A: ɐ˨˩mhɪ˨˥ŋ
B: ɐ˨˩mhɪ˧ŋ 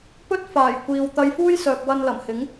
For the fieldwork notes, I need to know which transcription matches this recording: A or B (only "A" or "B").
A